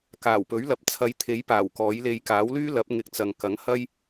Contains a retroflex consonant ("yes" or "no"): no